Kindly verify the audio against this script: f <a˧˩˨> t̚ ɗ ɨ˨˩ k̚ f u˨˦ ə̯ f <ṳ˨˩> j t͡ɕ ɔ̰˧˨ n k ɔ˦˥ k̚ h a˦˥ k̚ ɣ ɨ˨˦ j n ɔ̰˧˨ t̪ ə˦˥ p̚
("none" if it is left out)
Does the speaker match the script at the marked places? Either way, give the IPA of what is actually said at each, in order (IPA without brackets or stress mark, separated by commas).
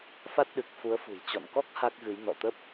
a˦˥, ṳ˨˩